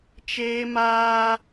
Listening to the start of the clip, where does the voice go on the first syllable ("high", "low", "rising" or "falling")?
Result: high